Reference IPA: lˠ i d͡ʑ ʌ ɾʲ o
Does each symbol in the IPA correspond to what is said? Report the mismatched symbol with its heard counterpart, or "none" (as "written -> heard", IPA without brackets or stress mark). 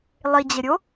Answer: ʌ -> ə